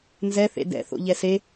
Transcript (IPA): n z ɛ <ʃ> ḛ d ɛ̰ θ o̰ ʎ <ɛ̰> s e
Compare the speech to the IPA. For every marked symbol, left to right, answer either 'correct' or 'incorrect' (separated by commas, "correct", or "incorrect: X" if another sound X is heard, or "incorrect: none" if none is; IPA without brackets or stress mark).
incorrect: θ, incorrect: ɛ